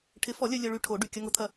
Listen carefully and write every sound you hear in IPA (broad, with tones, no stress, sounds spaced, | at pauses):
ʈʰ ɪ˨˥ f ɔ˨˩˦ lʲ œ˧ lʲ œ˧ ɭ y˧ ʈʰ o˨˩˦ ɖ y˩˧˩ kʲ ɐ˧ ŋ ʊ˨˥ t̪ʰ ɐ˧